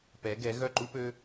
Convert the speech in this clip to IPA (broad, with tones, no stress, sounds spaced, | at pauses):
p ɛ˩˧ ɡ ɛ˩˧ ɣ œ˧˩ ǃ u˧ p ø˧